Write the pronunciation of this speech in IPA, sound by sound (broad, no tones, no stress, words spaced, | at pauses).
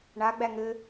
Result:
ɳaɡ͡bæ ŋɘ